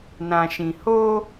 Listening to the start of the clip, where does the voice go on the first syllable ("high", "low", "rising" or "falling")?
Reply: low